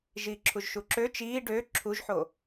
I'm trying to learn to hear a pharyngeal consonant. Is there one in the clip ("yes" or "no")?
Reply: yes